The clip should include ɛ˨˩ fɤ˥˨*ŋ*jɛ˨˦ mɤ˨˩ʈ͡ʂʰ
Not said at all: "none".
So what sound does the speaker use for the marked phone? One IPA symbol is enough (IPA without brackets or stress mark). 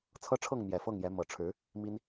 ŋ